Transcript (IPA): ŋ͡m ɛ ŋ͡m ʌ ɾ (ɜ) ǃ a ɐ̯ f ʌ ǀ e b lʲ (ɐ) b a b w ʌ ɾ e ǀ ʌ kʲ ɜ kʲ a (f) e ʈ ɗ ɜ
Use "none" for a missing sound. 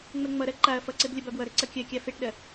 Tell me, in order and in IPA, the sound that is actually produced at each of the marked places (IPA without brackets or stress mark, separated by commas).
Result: ɜ, ɐ, f